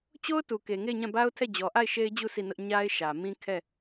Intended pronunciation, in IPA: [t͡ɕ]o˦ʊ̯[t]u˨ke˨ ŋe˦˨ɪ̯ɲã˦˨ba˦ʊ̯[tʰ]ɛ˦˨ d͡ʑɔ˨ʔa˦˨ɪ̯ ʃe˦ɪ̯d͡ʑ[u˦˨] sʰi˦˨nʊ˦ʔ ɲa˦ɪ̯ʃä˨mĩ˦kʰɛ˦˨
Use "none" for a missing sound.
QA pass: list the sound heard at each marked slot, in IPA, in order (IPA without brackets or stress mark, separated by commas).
t͡ɕ, t, tʰ, u˦˨